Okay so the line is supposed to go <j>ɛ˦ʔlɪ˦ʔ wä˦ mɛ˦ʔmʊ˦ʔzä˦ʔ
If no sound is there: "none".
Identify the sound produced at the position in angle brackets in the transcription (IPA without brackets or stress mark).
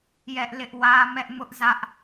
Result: j